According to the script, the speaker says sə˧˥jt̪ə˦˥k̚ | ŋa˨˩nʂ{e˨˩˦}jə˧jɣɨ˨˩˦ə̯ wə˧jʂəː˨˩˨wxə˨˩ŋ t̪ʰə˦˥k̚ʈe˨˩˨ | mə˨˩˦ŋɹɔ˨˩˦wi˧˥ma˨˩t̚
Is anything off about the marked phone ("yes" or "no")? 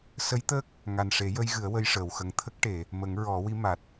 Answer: no